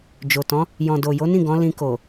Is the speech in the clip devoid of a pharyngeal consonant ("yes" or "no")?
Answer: yes